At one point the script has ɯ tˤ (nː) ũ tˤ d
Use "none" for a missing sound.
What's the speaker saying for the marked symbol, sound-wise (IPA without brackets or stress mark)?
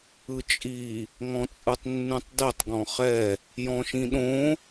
nː